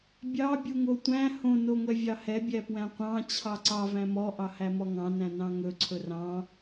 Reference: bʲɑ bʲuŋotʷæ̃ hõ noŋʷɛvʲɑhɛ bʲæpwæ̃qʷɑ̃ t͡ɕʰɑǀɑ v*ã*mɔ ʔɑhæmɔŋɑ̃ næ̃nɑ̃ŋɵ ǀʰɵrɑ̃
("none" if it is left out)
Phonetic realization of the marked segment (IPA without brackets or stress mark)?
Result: æ̃